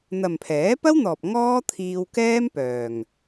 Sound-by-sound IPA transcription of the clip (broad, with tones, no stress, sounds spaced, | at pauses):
n̪ ɐ˨ m pʰ ɛː˨˥ p ɐ˥ w n̪ ɔː˨ p̚ ŋ ɔː˥ t̪ʰ iː˧ w k ɛː˥ m p œː˨ ŋ